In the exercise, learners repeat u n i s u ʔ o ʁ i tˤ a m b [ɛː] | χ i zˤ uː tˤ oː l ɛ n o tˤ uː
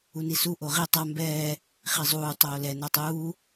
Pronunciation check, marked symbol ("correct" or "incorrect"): correct